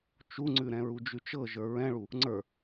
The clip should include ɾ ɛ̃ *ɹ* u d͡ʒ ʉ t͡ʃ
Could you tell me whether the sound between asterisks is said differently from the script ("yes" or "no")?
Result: no